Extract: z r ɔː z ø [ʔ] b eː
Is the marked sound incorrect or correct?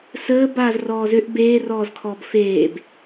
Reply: correct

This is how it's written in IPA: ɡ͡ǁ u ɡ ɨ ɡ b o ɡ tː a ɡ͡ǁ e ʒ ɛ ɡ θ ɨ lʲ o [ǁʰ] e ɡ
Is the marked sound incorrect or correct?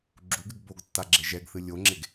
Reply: incorrect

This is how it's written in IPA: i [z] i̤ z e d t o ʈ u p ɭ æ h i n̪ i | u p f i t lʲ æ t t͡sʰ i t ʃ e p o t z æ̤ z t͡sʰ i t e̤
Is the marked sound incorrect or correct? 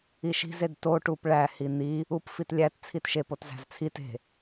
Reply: incorrect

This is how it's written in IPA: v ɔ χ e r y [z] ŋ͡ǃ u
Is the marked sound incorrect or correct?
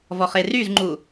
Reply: correct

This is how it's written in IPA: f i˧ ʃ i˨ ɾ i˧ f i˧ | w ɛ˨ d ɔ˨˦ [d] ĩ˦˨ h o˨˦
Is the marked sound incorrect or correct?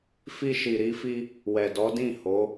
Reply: correct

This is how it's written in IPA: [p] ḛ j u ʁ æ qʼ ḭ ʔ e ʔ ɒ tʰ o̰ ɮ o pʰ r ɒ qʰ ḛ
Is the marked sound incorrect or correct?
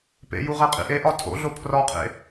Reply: correct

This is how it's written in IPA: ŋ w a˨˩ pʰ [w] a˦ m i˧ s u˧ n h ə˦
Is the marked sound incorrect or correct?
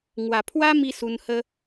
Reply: correct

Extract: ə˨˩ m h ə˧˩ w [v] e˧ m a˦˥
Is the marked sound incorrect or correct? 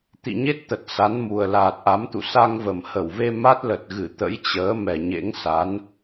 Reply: correct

